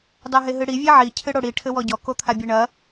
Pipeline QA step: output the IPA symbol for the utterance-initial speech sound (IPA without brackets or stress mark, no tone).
dˤ